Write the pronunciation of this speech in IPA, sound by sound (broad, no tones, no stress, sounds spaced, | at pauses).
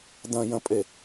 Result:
d ɐ̃ j ɐ̃ pʼ e